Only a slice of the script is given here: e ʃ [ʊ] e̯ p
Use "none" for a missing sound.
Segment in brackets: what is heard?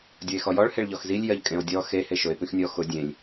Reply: ʊ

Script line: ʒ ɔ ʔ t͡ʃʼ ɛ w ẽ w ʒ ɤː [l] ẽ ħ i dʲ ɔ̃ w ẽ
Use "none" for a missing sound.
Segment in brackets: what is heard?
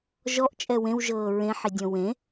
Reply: ɹ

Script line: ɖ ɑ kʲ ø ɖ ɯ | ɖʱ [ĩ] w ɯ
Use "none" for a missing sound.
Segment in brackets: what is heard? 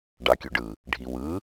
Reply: i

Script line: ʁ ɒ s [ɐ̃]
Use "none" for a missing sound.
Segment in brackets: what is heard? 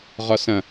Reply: ɐ̃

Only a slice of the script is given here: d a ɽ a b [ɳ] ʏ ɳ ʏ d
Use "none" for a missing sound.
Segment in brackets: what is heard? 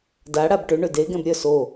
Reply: ʈ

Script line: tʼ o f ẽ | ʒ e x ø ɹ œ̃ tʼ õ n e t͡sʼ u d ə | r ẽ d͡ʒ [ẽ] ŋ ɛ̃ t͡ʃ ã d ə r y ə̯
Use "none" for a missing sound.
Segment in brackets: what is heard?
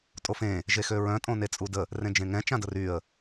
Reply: ẽ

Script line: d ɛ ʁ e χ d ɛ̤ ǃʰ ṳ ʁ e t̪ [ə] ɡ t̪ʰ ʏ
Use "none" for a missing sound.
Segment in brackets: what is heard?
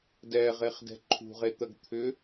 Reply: ə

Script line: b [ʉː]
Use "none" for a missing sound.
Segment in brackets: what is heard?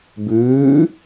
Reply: ʉː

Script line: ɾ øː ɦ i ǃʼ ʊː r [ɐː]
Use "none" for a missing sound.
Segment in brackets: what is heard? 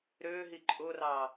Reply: ɑː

